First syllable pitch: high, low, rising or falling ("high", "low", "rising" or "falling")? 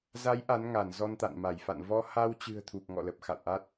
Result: rising